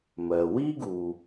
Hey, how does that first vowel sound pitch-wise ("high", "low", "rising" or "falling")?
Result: low